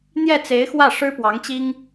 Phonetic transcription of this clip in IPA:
n̪jɛ˥˩t͡se˧˥ɪ̯ xwä˥˩ʂɻ̩˥pwɑ˧˥ŋt͡ɕi˥ŋ

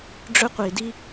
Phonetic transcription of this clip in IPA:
ɖ͡ʐɵ˥qʷi˩di˥

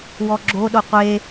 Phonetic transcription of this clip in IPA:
wɔɡ͡ǁo ɗoqʷe

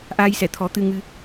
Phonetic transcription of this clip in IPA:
ʔaː˧jsɛ˨˩˨t̪ʰɔ˨˩˦ t̪ɨ˧ŋɨ˧

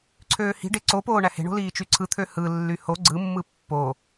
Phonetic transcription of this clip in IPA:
ǀʰøːhi̤ɖe ǀopoː ɳæhe̤ɳo̤ liːt͡ʃyǀʰɯt̪ʰø hɯlːy ho ɡ͡ǀɯmːɯ pːo

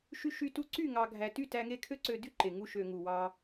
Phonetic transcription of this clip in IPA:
ʃy˧ʃy˧tu˧ ǀy˦˨ŋɑ˨ɡʱæ˨ty˦˨ tæ˧ŋe˦˨kʰø˦ǀø˧ dy˦ǃe˨ŋu˧ ʃø˨ ŋu˨wɑ˧

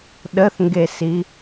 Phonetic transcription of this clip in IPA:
ɗəθŋɡesi

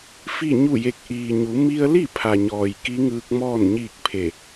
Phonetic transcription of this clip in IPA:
fi˥˨ɲu˥˨je˧k̚ ʔiː˩ɲu˩˧ mi˧ə̯li˥˨pʰa˩ɲɔː˩j ki˧˥ŋɯː˧k̚mɔː˥˨n ɲiː˥˨k̚pʰe˧˩

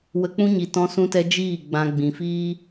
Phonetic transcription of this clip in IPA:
wə˧k͡pũ˦ɲi˨ tɔ̃˧sũ˧tɛ˧ d͡ʒiː˦˨ ɡ͡bã˧ ɡ͡bĩ˨fiː˦

